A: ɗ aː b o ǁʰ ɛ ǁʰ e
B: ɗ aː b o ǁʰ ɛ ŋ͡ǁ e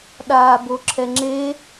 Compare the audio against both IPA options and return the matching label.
B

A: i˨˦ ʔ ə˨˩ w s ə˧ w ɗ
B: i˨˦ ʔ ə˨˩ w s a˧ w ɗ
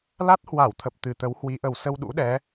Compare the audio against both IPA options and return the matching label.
A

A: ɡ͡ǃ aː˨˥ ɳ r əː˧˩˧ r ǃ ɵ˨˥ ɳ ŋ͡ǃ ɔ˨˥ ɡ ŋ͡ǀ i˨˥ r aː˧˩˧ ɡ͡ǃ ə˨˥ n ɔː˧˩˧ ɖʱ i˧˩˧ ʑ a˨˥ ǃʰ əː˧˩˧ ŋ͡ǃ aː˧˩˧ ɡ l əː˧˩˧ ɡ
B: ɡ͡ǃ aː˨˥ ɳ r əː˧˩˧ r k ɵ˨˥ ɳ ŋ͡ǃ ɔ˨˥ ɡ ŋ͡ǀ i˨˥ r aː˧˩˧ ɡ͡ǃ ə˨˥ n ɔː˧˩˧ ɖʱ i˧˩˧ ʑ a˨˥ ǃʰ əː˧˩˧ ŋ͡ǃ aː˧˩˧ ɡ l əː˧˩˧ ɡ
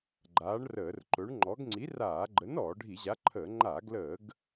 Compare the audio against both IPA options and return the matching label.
A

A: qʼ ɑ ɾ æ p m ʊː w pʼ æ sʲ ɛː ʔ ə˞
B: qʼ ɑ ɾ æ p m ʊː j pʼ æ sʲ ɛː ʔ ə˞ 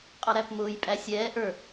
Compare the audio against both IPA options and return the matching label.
B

